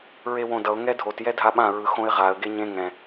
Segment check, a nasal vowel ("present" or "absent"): present